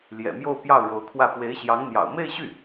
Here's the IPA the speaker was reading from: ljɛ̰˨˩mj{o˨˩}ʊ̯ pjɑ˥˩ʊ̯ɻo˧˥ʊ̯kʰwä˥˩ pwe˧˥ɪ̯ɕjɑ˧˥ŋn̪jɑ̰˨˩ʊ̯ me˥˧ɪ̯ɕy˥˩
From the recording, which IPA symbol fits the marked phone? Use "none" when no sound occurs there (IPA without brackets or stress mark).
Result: o˥˧